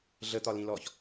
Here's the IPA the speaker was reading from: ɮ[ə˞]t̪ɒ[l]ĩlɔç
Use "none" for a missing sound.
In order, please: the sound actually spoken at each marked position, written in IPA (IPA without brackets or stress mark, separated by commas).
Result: ə, l